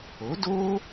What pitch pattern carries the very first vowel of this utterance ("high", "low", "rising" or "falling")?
rising